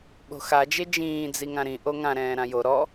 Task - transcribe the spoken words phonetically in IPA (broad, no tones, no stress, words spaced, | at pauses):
ɓo̤xad͡ʒe d͡ʒĩːd͡zi ŋãɾĩ ʔoŋã ɾɛ̃ːɾãjo ɾɔ